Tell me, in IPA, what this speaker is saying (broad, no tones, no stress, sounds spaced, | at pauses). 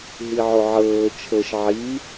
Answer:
ɦ i ʕ o ʕ ɤː t͡ʃʰ ɤ ʃ ʕ i